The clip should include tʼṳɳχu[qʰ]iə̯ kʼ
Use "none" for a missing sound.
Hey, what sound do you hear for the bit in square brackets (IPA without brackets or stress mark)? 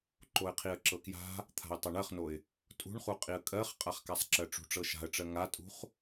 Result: qʼ